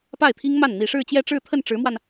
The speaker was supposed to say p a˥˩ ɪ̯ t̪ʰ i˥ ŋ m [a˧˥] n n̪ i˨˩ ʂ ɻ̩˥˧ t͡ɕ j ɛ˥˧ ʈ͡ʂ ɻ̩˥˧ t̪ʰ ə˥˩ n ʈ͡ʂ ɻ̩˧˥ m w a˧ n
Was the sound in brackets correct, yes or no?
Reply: no